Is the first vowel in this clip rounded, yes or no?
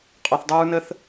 yes